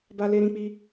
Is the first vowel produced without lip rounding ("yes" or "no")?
yes